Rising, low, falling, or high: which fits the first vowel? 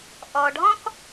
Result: low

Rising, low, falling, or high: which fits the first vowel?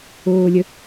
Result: low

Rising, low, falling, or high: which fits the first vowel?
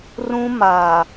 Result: high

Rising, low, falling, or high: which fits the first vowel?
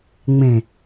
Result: low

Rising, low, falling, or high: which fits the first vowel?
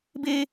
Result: high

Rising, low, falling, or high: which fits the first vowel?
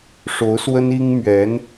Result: rising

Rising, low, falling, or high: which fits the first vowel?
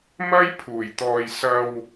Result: high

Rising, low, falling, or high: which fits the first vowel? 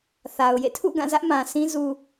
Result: low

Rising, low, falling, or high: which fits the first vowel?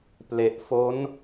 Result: low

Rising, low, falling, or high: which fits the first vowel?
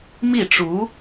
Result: falling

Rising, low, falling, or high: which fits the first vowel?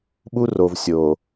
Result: high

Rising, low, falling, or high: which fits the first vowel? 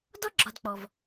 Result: high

